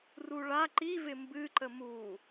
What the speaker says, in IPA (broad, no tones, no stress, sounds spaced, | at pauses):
r u ɭ a ǃ i v ɪ m b ɨ ǃ ə m u